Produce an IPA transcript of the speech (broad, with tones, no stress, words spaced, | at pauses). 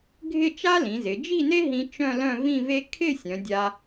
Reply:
ɡʱɪ˥˧t͡ʃa˥lĩ˩˧zɪ˩˧ d͡ʒi˥˧ne˥ɦĩ˧ t͡ʃœ̃˥˧lœ̃˥˧ vĩ˥˧ve˥ kʰɪ˥˧ sʲœ̃˩˧dʲa˧